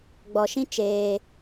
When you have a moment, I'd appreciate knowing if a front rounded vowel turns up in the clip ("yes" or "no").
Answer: no